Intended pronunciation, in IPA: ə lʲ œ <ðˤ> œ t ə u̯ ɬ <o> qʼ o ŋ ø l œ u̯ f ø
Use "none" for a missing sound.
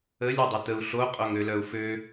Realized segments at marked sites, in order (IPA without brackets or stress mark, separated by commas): dˤ, o